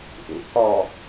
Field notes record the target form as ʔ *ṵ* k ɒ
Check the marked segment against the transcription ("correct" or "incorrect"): correct